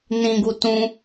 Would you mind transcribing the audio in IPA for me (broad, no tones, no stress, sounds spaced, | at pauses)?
n ĩ ɡ u t ũ